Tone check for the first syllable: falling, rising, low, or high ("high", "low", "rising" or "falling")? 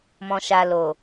low